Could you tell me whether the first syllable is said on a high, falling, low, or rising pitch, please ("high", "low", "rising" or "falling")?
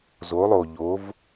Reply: rising